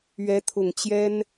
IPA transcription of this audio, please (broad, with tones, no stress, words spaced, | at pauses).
ɥɛ˧˥t̪ʰʊ˨˩ŋt͡ɕjɛ˥n